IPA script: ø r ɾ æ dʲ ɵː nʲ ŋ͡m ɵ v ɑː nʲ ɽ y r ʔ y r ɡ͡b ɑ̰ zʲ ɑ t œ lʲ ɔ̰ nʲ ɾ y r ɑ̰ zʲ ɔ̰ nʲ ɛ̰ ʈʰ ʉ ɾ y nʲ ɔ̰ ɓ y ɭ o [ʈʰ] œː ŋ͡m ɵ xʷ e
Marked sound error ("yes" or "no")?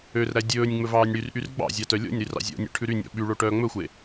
yes